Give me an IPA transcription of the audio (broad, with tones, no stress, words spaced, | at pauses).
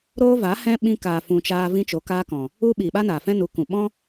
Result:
ɾoː˦va˨˦ hɛ̃˦ ɓĩ˧kaː˨ fũ˧t͡ʃaː˦ vĩ˦t͡ʃo˨˦kaː˦kɔ̃˨ | u˦ ɓiː˨ɓa˦naː˨fɛ̃˦ nu˨˦kũ˨ ɓɔ̃˦